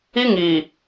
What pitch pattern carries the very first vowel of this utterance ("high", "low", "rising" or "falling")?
high